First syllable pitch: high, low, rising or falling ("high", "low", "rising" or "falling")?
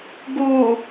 low